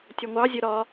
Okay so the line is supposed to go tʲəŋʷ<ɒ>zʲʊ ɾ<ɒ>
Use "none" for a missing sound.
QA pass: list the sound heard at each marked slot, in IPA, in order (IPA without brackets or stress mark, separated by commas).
ɑ, ɒ